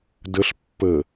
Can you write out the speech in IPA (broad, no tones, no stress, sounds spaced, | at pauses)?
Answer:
d ə ɬ pː ə